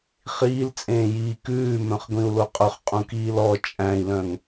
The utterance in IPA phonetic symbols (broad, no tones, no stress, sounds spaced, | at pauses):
χ iː l t͡sʼ ẽː j iː k ʉː m œ̃ χ ɡʷ ĩ u̯ l o qʼ ɵ χ qʼ ũ k iː l ɔ t͡ʃʼ æ̃ i̯ l œ̃ ŋ